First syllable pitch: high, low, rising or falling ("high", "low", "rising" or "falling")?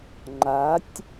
rising